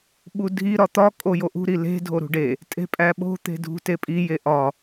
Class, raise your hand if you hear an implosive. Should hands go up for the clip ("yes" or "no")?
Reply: yes